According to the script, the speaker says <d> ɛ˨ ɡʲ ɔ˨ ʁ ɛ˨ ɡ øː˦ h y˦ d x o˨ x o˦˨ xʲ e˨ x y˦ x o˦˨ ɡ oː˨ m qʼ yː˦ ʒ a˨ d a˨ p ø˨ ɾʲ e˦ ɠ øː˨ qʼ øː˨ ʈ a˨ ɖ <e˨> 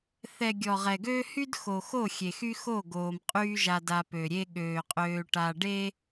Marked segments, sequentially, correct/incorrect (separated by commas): incorrect, incorrect